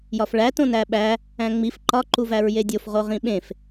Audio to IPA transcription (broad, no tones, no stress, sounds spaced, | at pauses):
j ɒ f ɭ æ t õ n æ ɓ æ | æ̃ ŋ͡m i f ǃ ɒ ǃ u v æ ɹ j e dʲ o f ʁ o ʁ ĩ ɓ ẽ f